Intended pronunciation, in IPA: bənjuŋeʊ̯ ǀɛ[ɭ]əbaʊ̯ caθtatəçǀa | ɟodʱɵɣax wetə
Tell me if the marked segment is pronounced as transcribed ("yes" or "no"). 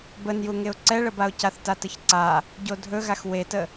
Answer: yes